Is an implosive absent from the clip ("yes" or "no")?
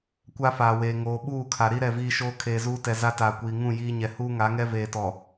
no